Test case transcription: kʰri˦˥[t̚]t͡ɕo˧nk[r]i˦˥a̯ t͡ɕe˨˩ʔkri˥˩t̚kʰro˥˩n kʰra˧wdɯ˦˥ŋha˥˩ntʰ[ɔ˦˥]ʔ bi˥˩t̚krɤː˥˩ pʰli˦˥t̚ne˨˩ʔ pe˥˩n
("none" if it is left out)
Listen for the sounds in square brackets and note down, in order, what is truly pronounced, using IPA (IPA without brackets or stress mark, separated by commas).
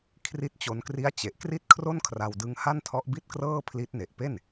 t̚, r, ɔ˦˥